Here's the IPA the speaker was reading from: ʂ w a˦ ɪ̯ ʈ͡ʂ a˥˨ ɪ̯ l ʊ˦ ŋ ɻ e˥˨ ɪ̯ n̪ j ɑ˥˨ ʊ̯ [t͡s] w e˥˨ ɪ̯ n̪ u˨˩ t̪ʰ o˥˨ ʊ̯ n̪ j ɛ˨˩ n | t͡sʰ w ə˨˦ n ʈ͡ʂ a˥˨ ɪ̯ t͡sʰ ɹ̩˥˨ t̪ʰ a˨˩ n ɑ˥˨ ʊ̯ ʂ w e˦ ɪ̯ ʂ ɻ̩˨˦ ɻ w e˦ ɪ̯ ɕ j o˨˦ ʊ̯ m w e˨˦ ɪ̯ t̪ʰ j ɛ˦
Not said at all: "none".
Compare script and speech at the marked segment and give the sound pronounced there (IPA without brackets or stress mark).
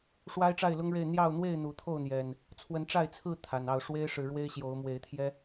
n̪